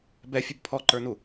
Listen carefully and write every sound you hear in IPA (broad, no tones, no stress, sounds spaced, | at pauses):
b ɛ fʲ ʊ b pʰ ɔ ǃ ə˞ n u